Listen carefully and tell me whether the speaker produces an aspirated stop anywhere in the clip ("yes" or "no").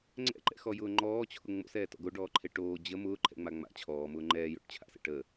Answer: yes